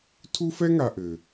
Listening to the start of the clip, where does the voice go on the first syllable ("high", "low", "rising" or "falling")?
high